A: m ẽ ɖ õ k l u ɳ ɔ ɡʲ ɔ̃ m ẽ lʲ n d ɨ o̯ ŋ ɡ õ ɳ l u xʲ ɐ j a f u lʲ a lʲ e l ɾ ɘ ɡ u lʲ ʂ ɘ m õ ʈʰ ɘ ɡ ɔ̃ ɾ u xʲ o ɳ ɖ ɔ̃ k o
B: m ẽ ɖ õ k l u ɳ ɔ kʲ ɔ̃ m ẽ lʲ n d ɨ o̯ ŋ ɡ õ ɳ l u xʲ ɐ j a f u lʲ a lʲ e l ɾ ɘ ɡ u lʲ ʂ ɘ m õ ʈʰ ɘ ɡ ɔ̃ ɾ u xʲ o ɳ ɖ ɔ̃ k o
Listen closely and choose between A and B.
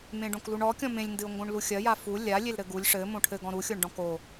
B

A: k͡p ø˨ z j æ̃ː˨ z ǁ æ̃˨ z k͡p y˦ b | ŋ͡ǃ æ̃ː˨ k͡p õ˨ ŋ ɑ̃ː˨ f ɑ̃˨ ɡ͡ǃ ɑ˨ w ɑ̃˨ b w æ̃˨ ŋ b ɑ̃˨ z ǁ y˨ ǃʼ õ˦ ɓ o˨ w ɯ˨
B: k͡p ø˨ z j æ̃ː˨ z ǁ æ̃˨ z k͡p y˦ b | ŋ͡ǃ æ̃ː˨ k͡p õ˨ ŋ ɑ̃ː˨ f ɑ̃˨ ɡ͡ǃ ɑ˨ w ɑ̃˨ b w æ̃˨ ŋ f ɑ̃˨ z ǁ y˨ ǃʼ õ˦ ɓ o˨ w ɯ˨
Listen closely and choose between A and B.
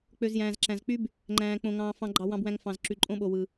B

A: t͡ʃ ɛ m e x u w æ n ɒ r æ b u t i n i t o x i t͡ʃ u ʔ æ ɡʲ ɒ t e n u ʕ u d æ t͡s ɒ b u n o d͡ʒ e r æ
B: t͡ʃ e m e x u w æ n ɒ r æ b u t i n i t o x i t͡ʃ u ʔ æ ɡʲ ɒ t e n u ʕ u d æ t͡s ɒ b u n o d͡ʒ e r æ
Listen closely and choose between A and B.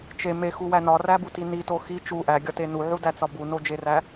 B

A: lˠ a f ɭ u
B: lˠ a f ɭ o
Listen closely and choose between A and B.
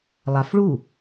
A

